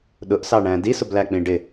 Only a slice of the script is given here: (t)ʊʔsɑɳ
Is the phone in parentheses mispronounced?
yes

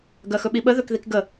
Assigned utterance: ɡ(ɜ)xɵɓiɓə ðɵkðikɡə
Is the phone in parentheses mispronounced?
no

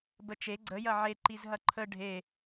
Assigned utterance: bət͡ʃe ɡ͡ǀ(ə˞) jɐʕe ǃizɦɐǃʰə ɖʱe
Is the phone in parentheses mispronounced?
yes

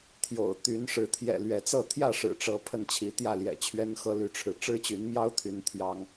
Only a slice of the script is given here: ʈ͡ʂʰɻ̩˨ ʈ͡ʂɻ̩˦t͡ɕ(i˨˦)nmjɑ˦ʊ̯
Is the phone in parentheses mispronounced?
yes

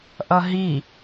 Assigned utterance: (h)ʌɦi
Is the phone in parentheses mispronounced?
yes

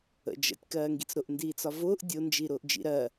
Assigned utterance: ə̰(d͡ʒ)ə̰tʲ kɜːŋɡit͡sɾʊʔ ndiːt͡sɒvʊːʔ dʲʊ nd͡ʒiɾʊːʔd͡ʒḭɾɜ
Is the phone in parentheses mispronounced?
no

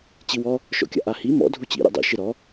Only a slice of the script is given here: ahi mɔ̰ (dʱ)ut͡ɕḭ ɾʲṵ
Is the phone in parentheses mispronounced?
no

